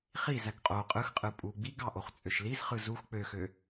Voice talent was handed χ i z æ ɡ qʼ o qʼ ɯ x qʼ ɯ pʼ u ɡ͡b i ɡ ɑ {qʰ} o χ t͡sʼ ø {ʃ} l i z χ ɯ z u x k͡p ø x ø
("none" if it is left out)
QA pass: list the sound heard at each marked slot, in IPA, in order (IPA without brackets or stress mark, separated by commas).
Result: ʔ, ʃ